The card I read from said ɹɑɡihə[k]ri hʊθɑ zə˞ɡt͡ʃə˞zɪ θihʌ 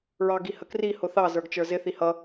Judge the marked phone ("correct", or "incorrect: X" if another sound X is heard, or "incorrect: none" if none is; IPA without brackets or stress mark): correct